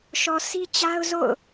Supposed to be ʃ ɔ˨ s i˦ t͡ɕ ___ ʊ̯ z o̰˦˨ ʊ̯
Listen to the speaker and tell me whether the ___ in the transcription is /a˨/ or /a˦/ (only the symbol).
a˦